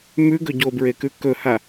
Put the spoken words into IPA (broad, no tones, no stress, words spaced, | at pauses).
mʉɡɵ ɟobɹekʉ kɵha